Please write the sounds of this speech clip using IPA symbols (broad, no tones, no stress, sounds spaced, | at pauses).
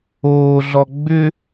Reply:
oː ɮ ɔ ɡ͡b ʏ